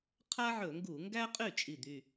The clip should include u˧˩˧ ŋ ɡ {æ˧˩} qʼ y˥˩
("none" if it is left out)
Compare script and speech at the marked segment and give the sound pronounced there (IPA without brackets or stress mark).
æ˥